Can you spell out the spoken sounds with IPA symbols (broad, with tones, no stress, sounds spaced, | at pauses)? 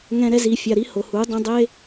ŋ ɛ̃˦ ɾ ɛ˦ z i˧ fʲ a˧ ɾ i˦ h o˨ h u˨˦ dˤ ũ˧ dˤ e˦